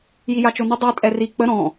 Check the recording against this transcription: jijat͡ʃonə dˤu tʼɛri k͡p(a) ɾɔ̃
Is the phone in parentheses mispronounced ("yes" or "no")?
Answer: yes